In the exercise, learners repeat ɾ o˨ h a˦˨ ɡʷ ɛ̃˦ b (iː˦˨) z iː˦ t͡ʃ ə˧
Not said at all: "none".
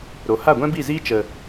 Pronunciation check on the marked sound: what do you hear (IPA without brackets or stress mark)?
i˦˨